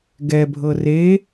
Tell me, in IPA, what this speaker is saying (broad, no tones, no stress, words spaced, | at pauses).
ɡɛbʱɤ re